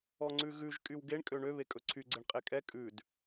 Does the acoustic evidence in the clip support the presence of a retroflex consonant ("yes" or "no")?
yes